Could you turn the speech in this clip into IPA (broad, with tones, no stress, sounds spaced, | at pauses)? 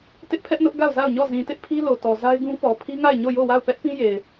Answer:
t ɪ˦ ʔ pʰ ɛ˦ ʔ n ʊ˦ ʔ ɡ a˦˨ ʊ̯ z a˦˨ ʊ̯ ɲ ɔ˦˨ z ĩ˨ t ɪ˦ ʔ pʰ i˦ l o˨ t ɔ˨ z a˦ ɪ̯ ɡ ũ˦ p ɔ˨ pʰ i˦ ŋ a˦˨ ɪ̯ ɲ o˦˨ j o˦˨ w a˦˨ ʊ̯ p ɛ˦ ʔ p ĩ˦ j e˨ ɪ̯